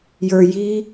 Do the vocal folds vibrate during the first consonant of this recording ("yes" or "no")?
yes